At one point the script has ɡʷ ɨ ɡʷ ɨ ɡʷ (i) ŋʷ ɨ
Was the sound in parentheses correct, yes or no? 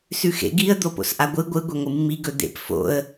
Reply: no